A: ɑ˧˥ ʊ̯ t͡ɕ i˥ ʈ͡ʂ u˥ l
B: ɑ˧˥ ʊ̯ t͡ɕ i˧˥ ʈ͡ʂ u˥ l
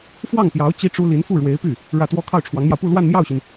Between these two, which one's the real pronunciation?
A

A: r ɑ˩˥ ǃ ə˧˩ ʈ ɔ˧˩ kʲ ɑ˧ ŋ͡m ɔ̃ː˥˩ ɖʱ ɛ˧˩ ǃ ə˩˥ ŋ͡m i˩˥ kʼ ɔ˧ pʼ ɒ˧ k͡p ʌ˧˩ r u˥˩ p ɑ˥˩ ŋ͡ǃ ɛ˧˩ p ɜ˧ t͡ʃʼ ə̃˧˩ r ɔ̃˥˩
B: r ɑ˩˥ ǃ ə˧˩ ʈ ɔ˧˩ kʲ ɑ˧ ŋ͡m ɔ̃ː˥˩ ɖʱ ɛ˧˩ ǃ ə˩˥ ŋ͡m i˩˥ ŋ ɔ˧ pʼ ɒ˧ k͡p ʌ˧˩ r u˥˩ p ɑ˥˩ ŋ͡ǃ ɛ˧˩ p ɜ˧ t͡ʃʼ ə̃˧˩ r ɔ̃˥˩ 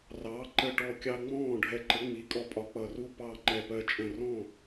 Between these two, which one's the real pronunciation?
A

